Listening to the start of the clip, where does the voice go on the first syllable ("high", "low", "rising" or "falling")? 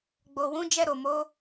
low